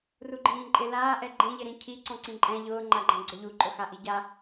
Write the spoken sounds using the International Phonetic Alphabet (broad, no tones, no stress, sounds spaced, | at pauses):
r u ɡ͡ǃ ĩː ǃʼ ɪ l aː ʔ ɛ ɡ͡ǃ ẽ ʎ ɪ ɾ ĩ cʰ i ǀ ɔ̃ ǀ ĩ ǃʼ ɛ̃ ʎ ʊː ŋ͡ǃ a ɡ͡ǃ ã ɡ͡ǀ o ʎ u ǃʼ ʊ x a ʔ i ɟ a